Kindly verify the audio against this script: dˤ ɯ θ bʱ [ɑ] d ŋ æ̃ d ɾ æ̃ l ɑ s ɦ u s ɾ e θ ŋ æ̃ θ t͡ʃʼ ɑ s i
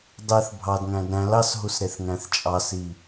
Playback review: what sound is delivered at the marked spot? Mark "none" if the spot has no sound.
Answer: ɑ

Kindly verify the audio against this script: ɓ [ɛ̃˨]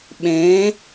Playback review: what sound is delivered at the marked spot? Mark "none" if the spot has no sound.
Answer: ɛ̃˨˦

